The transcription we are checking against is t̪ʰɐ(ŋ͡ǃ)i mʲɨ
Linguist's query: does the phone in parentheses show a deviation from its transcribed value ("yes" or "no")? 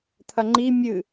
no